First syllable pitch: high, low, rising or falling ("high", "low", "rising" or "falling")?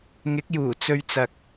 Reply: rising